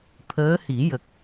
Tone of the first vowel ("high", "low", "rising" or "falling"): rising